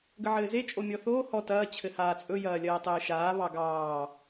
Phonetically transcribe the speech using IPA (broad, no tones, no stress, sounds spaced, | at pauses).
ɡ ə ʕ ɘː z e t͡ʃʼ o mʲ ɔ θ oː h ɔ t ɐː t͡ɕʰ ɘ h aː t͡sʼ ɵ j ɐː lʲ ɐː tˤ ɘː ʃ aː β ɑ ɡ ɑː